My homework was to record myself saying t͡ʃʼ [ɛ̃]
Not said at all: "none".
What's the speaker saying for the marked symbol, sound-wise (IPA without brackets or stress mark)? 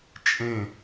ẽ